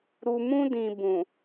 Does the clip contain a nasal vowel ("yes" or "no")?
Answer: yes